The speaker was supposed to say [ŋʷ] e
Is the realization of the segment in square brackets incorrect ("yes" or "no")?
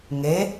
yes